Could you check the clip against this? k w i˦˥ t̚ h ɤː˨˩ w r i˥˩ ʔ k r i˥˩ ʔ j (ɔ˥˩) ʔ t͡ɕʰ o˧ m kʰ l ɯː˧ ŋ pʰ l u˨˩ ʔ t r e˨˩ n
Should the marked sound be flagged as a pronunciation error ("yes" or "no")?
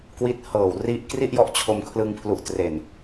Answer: no